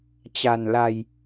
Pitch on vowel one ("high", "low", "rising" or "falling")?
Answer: low